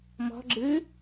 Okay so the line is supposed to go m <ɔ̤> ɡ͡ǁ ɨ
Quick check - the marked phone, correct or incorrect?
correct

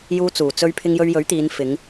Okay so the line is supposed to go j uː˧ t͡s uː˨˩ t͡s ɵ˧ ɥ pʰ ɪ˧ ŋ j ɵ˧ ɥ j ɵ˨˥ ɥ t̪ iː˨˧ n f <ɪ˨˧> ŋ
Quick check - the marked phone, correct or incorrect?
correct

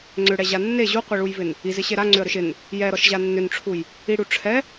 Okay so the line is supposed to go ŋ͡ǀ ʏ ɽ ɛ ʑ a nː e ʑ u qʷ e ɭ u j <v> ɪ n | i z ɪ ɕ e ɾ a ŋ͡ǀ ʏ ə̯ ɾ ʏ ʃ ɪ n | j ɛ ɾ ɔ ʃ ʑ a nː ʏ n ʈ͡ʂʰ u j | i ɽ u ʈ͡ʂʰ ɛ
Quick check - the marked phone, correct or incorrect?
correct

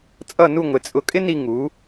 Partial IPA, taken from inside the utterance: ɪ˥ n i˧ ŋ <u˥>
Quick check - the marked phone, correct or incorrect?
incorrect: u˩˧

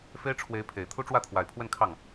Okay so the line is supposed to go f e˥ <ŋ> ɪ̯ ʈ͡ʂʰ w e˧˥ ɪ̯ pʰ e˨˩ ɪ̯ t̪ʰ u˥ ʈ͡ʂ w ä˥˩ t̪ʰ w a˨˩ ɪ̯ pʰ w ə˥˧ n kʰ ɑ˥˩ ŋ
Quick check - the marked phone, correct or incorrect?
incorrect: none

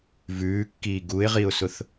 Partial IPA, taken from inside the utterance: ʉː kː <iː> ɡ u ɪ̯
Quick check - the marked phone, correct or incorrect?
correct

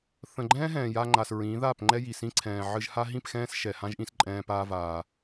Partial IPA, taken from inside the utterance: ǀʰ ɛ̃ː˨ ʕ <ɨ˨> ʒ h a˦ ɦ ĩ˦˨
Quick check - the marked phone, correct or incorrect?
incorrect: ɨ˧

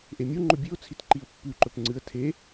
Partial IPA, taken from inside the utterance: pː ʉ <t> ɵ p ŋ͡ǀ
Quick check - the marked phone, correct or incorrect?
incorrect: ǃ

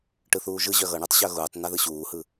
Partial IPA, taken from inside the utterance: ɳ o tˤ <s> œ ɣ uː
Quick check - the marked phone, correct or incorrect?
incorrect: ɕ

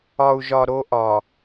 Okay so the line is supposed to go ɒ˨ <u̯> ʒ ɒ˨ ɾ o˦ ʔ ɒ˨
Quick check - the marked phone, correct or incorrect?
correct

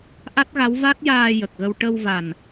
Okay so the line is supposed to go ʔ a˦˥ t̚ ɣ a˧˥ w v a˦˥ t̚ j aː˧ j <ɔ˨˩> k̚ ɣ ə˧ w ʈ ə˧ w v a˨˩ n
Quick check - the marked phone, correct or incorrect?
incorrect: ə˨˩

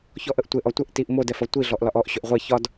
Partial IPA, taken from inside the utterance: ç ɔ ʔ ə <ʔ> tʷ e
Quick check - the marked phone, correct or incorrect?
correct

